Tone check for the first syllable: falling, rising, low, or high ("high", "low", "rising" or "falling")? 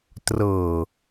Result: low